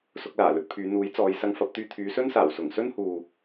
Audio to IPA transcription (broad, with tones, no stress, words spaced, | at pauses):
sʊ˧k̚laː˨˩lɵ˧t̚pʰyː˨˧ n̪uː˨˥j t͡sɔː˨˧j sɐ˧ŋfɐ˨˥p̚t̪yː˧ t̪ʰyː˨˧sɵ˥nsaː˨˩w sʊ˨˩ŋsɵ˥nhuː˨